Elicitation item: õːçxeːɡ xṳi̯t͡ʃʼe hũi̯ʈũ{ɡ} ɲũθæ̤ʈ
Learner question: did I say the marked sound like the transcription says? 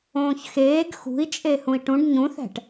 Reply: no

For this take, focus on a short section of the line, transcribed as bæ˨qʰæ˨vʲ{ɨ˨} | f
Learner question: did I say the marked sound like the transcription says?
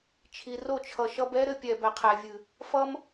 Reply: yes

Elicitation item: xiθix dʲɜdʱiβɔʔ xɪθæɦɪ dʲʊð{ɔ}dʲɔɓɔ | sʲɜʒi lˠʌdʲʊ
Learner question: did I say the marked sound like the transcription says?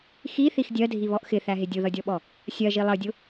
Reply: no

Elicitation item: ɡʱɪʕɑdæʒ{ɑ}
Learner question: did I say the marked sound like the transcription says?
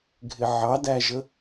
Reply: no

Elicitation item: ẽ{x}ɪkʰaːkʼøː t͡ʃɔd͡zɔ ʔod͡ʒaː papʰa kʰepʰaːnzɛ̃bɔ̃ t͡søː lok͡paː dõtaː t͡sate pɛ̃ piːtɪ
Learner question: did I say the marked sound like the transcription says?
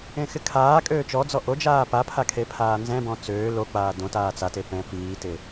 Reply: yes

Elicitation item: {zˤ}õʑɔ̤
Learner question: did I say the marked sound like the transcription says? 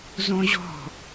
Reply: no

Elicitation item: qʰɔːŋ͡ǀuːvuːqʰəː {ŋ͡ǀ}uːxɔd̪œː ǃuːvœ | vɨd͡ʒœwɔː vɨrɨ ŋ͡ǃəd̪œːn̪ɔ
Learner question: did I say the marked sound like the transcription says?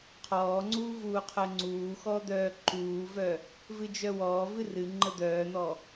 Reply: yes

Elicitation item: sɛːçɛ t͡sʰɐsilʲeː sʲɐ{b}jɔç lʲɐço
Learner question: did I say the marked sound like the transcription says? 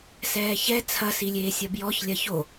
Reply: yes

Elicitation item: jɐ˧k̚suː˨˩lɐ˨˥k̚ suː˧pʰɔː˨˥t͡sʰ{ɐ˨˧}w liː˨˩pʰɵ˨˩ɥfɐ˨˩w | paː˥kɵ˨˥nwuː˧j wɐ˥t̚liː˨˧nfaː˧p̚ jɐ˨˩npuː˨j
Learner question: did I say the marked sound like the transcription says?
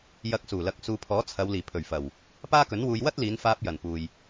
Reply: yes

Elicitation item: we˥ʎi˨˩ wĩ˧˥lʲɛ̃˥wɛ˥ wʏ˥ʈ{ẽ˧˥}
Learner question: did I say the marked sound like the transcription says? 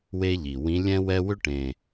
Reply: no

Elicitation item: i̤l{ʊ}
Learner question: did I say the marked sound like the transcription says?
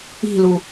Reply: no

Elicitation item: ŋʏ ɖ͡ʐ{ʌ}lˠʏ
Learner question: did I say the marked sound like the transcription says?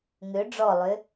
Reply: no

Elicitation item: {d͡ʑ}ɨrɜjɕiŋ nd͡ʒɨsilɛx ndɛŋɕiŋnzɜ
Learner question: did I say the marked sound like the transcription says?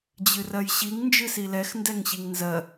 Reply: yes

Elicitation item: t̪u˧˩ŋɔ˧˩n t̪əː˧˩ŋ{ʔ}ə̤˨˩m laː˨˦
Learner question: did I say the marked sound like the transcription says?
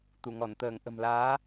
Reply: yes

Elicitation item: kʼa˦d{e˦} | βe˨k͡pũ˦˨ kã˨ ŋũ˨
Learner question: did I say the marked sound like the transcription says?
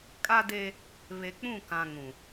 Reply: yes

